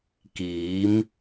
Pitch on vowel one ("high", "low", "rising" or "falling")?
rising